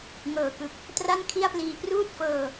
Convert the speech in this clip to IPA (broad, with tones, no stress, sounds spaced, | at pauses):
ŋ ɤː˨˩ k ɯ˨˩ k̚ | t r a˥˩ n kʰ i˥˩ a̯ p l iː˧ p r uː˥˩ t̚ f ɤː˧